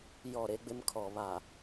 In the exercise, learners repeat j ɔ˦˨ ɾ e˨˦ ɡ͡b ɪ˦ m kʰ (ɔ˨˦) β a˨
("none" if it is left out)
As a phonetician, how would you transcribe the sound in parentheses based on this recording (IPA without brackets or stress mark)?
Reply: ɔ˨